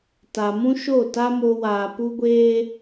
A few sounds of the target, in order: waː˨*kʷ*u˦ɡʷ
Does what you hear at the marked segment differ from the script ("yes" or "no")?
yes